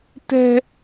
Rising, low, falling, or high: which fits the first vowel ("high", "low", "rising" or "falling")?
high